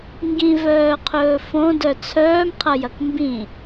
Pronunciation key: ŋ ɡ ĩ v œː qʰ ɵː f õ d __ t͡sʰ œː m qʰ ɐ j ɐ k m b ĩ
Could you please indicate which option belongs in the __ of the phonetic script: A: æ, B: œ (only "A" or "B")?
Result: B